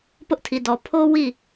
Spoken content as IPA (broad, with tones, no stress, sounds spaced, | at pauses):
p ʊ˦ ʔ tʰ i˨ d ɔ˨ pʰ o˦ w i˦˨